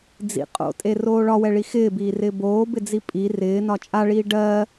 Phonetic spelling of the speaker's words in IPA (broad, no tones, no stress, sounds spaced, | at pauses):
d͡z ḭ qʼ o̰ tʼ e r oː ɭ ɒ w ɛ ɭ i x ɪː b iː r ɪː b oː b ɪ d͡z i pʼ i r ɪː n ɒ t͡ʃʼ a ɭ iː ɖ ɜ